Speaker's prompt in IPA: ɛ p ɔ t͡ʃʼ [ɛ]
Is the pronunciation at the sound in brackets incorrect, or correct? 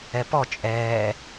incorrect